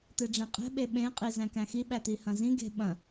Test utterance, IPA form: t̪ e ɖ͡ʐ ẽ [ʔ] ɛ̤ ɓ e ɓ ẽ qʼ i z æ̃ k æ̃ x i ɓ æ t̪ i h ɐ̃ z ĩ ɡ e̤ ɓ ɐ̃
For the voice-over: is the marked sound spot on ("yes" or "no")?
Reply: no